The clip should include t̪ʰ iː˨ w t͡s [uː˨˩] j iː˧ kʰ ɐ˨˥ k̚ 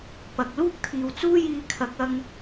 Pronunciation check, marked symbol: incorrect: uː˥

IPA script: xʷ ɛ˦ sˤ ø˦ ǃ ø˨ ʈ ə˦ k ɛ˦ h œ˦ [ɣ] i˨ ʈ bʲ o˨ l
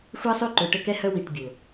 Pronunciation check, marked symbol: incorrect: w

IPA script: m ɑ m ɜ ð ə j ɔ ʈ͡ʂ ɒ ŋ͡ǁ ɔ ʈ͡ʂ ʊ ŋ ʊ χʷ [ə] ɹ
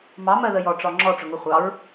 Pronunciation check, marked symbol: incorrect: ɑ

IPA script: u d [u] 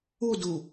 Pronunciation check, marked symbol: correct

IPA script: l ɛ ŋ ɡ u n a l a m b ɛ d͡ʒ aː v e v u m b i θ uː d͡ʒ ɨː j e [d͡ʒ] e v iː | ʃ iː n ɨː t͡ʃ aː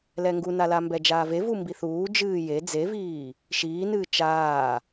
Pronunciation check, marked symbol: incorrect: d͡z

